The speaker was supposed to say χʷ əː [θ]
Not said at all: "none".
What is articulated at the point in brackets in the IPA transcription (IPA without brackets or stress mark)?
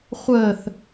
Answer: θ